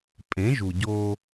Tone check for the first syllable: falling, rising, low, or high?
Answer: rising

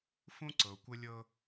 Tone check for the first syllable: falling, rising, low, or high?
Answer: high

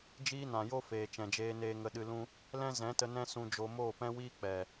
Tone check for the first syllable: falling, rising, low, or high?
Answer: high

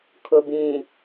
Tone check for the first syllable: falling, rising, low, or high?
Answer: low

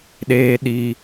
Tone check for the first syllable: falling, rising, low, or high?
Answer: high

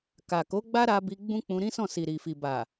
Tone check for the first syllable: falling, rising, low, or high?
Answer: low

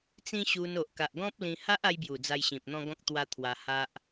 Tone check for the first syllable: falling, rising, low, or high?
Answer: high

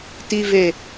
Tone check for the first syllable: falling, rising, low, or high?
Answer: low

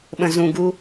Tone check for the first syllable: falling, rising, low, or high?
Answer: low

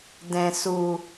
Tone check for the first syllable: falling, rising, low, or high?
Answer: low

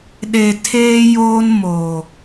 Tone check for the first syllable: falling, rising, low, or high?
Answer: low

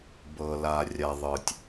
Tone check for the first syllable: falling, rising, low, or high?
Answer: low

